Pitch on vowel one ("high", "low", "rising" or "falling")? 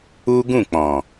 high